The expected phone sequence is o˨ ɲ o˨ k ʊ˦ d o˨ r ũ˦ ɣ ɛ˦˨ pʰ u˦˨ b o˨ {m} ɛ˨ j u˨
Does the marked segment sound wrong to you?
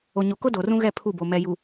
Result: no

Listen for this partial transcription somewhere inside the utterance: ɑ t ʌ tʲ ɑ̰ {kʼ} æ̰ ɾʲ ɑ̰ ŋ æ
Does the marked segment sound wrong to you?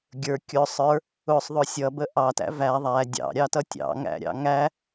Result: yes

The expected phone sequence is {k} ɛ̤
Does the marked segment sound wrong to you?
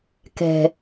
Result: no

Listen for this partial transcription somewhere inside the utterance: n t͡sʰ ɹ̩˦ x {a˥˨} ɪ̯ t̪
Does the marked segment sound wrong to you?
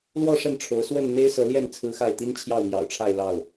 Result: no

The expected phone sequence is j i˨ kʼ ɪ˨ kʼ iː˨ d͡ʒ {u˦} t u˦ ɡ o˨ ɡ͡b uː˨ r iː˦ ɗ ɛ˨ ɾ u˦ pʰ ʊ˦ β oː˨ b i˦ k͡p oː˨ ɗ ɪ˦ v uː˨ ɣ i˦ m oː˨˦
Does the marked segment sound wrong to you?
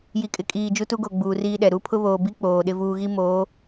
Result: no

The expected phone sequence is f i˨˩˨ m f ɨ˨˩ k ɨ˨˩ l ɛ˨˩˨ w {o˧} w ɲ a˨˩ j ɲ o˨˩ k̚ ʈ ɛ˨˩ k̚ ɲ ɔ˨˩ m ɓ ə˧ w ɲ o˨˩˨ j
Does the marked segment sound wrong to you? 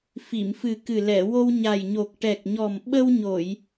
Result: no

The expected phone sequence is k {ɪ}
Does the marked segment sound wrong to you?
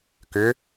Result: yes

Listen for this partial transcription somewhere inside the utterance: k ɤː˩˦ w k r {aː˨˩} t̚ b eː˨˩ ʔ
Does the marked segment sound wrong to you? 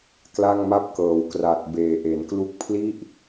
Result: yes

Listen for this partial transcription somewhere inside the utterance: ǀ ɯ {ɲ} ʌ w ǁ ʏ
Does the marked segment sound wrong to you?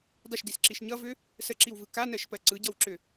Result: yes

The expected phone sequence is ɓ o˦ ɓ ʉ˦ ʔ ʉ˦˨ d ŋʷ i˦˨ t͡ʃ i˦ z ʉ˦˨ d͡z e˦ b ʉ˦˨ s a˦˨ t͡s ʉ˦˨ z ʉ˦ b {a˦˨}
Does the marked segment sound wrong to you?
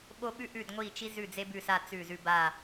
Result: no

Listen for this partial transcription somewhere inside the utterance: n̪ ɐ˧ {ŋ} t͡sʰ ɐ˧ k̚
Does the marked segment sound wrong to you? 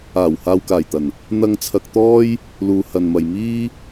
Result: no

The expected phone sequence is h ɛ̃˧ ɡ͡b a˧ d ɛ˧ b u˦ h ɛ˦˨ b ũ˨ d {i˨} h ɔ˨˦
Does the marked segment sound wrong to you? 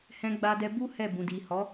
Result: no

